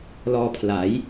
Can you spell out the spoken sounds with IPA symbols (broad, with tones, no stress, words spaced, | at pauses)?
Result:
lɔː˧pʰla˩˦j